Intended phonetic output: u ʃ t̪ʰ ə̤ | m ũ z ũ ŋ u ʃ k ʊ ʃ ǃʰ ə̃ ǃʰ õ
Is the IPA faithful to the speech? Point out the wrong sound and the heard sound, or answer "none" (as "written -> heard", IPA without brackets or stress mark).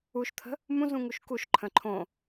ʊ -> u